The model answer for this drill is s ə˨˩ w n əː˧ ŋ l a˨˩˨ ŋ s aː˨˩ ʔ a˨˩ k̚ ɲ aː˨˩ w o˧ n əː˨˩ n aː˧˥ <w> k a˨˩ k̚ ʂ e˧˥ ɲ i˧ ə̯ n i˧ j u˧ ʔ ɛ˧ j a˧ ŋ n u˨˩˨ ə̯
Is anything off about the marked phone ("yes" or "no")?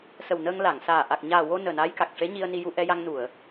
yes